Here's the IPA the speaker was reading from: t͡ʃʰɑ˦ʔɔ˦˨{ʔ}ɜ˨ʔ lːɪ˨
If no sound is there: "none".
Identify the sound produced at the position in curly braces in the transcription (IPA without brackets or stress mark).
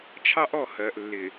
h